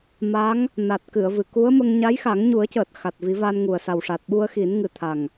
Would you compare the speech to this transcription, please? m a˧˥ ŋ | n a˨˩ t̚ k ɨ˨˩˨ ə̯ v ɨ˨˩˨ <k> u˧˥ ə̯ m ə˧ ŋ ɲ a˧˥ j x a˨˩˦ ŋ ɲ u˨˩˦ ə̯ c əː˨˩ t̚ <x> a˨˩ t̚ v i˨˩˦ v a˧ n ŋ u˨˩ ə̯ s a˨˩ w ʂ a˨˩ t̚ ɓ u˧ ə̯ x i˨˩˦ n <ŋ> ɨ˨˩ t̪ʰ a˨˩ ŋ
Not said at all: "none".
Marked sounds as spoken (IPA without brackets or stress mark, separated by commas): k, x, ŋ